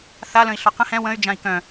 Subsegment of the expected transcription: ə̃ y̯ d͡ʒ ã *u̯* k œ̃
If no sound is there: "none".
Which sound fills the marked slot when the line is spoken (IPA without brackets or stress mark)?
i̯